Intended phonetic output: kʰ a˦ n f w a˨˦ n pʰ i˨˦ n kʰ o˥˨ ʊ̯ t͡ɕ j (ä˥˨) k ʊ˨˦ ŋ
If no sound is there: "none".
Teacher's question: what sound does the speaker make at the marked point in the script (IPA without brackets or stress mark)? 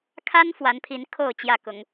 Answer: ä˥˨